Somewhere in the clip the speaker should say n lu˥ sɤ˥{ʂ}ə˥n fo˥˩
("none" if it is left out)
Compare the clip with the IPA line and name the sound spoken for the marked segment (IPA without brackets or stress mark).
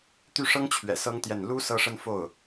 ʂ